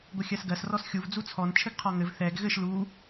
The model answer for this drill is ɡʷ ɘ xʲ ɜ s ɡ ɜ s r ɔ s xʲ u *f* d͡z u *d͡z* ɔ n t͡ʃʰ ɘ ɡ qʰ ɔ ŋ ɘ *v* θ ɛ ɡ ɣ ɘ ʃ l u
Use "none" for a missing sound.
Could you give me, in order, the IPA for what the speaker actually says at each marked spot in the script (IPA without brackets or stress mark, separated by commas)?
v, t͡sʰ, v